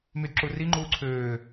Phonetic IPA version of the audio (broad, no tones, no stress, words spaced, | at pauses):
mydǁuri ŋ͡ǃuːǀʰøː